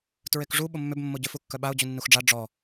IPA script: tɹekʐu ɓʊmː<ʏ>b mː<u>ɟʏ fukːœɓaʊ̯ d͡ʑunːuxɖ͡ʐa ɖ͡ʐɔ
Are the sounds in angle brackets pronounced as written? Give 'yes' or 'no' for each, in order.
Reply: yes, no

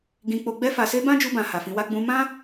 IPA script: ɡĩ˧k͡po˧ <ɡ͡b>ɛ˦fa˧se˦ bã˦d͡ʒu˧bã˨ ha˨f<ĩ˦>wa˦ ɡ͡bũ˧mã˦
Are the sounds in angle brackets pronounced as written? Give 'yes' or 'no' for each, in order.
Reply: yes, no

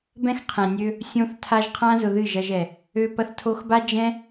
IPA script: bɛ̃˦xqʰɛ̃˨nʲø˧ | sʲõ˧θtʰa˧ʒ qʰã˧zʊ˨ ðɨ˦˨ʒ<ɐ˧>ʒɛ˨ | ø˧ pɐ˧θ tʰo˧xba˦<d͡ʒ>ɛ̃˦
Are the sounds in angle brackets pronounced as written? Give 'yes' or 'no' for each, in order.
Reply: yes, yes

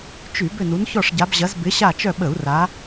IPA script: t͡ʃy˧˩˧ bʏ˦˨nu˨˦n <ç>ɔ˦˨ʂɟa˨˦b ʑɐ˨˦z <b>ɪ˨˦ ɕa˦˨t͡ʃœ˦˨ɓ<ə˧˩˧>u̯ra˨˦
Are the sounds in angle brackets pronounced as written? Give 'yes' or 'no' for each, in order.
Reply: yes, yes, yes

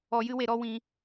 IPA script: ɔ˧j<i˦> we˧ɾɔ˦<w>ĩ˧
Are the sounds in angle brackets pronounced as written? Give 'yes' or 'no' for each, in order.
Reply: no, yes

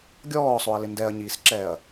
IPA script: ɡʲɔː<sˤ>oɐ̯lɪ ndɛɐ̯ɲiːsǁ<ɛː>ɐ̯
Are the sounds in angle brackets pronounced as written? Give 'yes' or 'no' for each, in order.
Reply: yes, yes

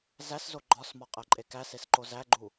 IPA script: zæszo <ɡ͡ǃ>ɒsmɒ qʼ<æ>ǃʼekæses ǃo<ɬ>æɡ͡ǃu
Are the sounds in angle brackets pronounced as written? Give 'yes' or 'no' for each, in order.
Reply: yes, yes, no

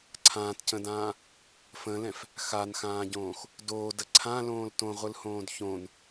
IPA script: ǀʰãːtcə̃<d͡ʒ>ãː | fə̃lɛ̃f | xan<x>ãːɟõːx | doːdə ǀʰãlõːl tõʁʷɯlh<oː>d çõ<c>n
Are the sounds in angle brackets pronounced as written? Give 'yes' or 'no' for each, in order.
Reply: no, yes, no, no

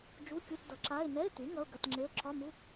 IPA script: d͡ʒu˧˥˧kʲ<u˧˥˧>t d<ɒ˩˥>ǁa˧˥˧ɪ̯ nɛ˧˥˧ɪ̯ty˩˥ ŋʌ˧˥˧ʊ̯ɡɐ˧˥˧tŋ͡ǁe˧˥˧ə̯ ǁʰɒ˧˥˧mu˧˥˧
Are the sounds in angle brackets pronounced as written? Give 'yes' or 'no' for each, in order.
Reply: yes, no

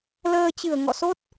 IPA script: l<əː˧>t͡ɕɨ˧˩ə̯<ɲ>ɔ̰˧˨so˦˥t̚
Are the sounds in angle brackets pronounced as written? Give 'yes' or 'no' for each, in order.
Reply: yes, no

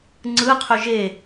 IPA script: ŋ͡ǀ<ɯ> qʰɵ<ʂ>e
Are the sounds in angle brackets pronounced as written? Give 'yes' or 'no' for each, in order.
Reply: yes, no

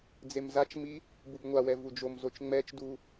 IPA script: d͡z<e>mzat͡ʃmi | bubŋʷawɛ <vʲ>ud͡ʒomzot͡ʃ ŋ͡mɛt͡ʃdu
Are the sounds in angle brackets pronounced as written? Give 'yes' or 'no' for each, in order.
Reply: yes, no

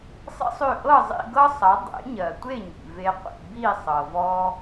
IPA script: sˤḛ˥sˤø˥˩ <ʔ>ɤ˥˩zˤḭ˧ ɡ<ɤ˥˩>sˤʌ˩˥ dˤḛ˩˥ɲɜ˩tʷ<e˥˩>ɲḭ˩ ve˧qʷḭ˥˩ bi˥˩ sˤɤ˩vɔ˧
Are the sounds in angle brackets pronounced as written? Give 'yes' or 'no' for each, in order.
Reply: yes, no, yes

